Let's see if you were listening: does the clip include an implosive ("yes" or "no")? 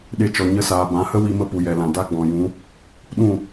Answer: yes